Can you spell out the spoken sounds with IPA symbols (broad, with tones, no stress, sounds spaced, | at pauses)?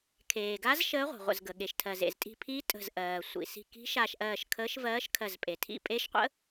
kʰ eː˩ ɡ a˧˥ z ʃ əː˧˥ ʁʷ i̤˩ ʁʷ ə̰˩ z ɡ ə˩ ɠ e˩ ʃ tʰ ɜ˩ z ḛ˩ z tʼ i̤˧˩ pʰ i˧˥ tʼ ə̤˧˩ z ʔ ɜː˩ sʷ ḭ˩ s i̤˧˩ k i̤˧˥ ʃ a˧˩ ʃ ʔ ɜː˧˩ ʃ kʰ əː˧˥ ʃ v ɜː˧˥ ʃ kʰ ɜ˧˩ z pʼ e˩ tʰ ḭ˧˩ pʼ e˧˥ ʃ qʷ ə̰˧˥